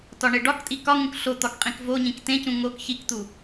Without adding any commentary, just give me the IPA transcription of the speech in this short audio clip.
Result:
tɒɳeɖɒktʼi kɒŋũk ɬot̪ɒk qʼĩkvoɲĩk tẽcũ ŋok çikt̪u

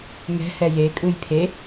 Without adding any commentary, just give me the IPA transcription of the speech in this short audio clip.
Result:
ŋɛ̤hɛ jekʼɯj pʰe

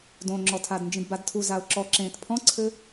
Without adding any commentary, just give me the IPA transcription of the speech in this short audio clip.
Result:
dõŋ͡ǁɔtʰadnd͡ʒĩd badtʰu zaʊ̯ǁɔ ǁẽːtpʰɔ̃ǀʰɘ

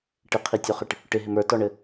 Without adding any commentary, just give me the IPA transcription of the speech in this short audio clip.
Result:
ʈɪqʰitʲoχɪʈ | ʈɪɦɪm ə˞tɔɳɘ

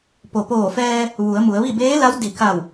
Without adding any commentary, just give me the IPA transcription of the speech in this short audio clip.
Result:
po˩poː˧˩fɛː˧ | ʋu˩˧ə̯mu˩˧ə̯ʋi˥˨ beː˧˥la˧˥w di˧˩ ka˧˩w

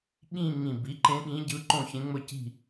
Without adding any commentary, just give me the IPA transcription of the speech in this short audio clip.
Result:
ɠĩ˥˧ ŋĩ˧˩ bi˩˥ǃẽ˧˥ɠĩ˧˥ɟɯ˧˥ ǃõ˥˧çẽ˧˥ŋ͡mɵ˥˧ ci̤˥˧

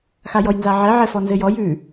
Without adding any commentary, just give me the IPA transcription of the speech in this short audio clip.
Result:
xajɔjnzaʕɛ ʕɛfɔnzɘjɔj ʉ

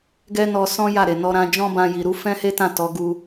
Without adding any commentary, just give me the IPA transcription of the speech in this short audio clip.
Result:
ɡɛ˦nɔ˧sɔ̃˦ ja˦˨ɾe˨nɔ˧ɾã˧ d͡ʒɔ̃˦bã˧ji˨ ɾu˨˦fɛ̃˦he˦tã˦˨ tɔ˨˦ɡu˧

